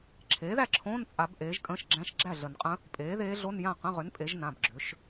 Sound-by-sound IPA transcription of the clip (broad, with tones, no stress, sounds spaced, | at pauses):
ǁʰ eː˩˥ ð æ˥˩ ǁʰ õː˧˥˧ n t͡sʼ a˨˩˦ b ʔ eː˩˥ ʒ kʼ ə̃ː˧˥˧ ʃ ɡ͡ǁ æ̃˧˥˧ ʃ ɡ͡ǁ æ˥˩ ɮ ə˨˩˦ n qʼ ə̃˧˥ | pʼ eː˩˥ ð eː˧˥ ɮ o˧˥˧ n j ã˥˩ q ə̃˧˥˧ ʁ ʏ˩˥ n pʼ e˩˥ ʒ n ã˩˧˩ b ɡ͡ǁ ʏ˩˥ ʃ